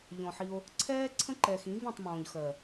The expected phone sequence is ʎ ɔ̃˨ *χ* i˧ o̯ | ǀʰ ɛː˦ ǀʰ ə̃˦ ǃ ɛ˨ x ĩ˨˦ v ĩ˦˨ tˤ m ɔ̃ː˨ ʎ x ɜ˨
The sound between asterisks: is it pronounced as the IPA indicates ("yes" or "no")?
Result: no